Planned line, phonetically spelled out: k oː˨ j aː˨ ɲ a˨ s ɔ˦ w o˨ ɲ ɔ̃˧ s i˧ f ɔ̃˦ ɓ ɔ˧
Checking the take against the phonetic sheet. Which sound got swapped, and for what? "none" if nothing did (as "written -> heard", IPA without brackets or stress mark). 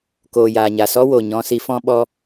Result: none